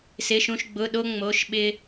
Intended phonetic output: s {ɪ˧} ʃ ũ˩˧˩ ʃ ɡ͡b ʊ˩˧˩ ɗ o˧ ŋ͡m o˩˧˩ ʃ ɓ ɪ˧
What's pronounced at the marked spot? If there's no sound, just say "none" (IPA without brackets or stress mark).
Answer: ɪ˩˧˩